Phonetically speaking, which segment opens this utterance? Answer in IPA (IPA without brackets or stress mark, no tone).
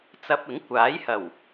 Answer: t͡s